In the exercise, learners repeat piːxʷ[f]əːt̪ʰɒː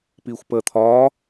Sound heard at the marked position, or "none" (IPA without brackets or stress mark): p